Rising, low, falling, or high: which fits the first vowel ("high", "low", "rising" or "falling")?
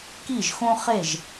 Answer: falling